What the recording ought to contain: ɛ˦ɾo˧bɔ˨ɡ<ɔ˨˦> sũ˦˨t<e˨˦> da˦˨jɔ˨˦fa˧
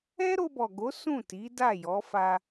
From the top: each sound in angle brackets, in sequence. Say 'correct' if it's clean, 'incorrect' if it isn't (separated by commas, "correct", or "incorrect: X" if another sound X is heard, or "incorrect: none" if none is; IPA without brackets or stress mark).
incorrect: o˨˦, incorrect: i˨˦